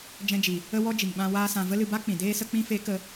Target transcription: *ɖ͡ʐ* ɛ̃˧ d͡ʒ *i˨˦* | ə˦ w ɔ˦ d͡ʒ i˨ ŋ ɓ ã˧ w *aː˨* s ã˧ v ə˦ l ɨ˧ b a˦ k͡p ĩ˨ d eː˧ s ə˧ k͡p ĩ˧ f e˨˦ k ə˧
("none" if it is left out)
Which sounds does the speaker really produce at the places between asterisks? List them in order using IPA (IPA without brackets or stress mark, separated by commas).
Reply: d͡ʒ, i˨, aː˦